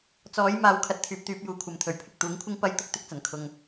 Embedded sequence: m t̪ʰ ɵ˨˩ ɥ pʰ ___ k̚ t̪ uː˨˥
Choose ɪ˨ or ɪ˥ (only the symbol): ɪ˨